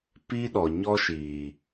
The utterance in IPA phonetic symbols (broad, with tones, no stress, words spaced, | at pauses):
pi˦ɗɔ˨ ɲɔ˦ʃiː˨